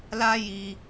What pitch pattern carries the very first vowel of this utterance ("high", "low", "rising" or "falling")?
high